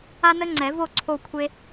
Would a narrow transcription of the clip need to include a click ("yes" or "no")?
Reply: yes